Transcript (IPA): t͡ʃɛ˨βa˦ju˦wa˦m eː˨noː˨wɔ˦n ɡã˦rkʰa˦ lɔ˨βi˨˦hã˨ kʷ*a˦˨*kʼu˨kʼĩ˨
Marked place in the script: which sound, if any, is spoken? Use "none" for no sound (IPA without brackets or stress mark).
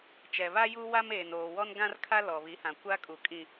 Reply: a˦